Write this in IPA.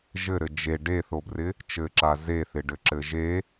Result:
ʒɘɾɘ d͡ʒe ɖeθobrɪ | t͡ʃɘǁa zeθɪɖɘǁɘ ʒe

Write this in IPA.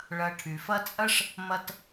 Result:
ɭɐ˨ʈʰy˩fɐ˦t͡sʼɐ˥ʂ | mɐ˦t

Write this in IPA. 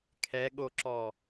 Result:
kʰɛɠoǁɔ

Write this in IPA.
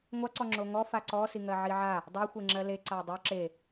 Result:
ŋʷaǀɔ ŋ͡ǁoŋɔ faǀɔsiŋɜ ʕiʕa | dˤɜxʷeŋ͡ǁɜ le ǀadˤo ǁe

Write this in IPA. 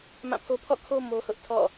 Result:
mã˦˨pʰo˦ pʰɔ̰˦˨kʰo˦ mo˦hʊ˦ʔ tʰɔ̰˦˨

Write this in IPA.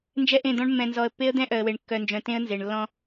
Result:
nd͡ʒɛ˦ʔẽ˦˨d̪ɔ̃˦ɳ mːɛ̃˨nzɔ˨ə̯pːe˦ə̯ d̪ɛ̃˦ʔœ˨ə̯we˨ɳ kːœ˨nd͡ʒœ̃˨ tẽ˦ə̯nze˨ɳ lːɔ̃˦

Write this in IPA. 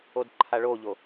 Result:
odǃʰaɭoʎo

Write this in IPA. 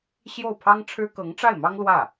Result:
ɕjo˥˩ʊ̯pʰɑ˥ŋʈ͡ʂʰɻ̩˥ kɤ˧˥ŋʈ͡ʂa˥˩ɪ̯mɑ˥ŋ lwä˥˩

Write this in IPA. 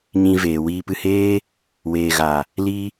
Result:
ɲĩ˨ veː˨wiː˧pɨ˧heː˦ | weː˨ɣa˨ | li˧

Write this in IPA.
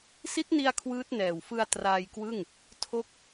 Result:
si˦˥t̚ni˧a̯ kʰwɯː˦˥t̚nɛː˨˩wfɯ˧a̯ traː˧jkwɯ˥˩ŋ | tʰo˦˥k̚

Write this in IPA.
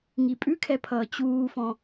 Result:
ŋipʼʉkʰɛpʰʌː t͡ɕuːfɔ̃

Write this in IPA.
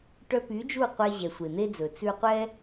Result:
ʈœ˧py˨˦d͡ʒu˦˨ qʷɛ˧ ʑɛ˨sʷe˨n̪e˦d͡zɵ˨ t͡sʉ˧qʷɛ˦

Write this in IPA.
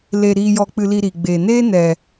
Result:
leː˨ɾiː˨jɔ˨k͡pɨ˨ li˧ɾiː˨ɡ͡beː˨ neː˦nɛ˨

